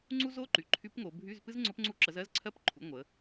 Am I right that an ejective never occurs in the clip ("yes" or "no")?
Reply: yes